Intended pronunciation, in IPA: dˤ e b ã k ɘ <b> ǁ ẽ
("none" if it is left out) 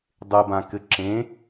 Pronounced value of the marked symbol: none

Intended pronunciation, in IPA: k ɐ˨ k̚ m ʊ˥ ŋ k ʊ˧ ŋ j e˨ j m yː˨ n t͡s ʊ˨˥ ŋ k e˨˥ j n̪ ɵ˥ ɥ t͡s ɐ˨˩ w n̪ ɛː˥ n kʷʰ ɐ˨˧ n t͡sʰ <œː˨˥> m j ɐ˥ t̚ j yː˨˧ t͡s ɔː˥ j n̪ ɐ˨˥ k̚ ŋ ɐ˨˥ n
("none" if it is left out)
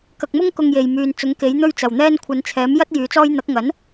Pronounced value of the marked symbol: ɛː˨˥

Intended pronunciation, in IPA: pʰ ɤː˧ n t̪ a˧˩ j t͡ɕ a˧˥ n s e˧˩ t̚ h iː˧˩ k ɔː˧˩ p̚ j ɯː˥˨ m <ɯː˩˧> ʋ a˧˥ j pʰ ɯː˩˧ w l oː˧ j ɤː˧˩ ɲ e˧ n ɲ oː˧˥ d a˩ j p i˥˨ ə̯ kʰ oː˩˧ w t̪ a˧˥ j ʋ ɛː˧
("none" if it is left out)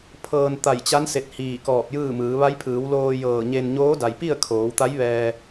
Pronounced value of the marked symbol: ɯː˩˧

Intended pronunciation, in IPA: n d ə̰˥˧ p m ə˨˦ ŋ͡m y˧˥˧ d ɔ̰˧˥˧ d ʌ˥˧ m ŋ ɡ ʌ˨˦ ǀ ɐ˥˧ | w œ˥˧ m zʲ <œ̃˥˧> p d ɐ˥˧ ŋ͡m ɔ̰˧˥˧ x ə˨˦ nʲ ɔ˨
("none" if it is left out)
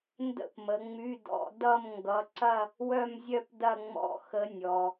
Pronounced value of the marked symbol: œ˥˧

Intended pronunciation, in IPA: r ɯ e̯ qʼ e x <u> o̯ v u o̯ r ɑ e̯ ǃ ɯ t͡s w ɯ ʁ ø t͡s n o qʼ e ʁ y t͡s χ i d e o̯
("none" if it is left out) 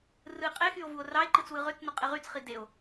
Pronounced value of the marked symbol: y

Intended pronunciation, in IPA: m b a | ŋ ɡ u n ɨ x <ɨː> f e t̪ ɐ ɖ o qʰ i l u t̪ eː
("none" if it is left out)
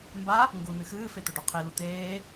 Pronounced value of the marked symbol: ɨː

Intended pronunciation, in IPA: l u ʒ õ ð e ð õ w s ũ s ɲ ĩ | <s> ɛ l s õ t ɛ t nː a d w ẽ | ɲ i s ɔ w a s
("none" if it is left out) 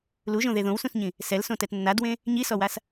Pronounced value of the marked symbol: s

